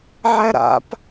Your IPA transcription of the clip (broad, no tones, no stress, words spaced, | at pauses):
ʕæɾa̰p